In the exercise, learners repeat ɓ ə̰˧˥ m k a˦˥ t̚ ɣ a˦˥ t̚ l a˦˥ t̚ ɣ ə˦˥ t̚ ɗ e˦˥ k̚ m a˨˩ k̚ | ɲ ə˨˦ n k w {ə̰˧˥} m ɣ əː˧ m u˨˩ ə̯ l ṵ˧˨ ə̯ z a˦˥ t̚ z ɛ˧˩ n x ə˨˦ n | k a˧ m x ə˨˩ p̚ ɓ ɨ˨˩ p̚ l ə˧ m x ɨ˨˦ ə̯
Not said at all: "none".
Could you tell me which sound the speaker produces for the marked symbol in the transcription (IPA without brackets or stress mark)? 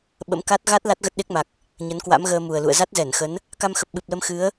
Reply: a̰˧˥